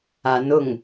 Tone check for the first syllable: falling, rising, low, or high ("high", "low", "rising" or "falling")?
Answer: rising